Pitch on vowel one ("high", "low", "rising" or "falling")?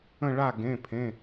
falling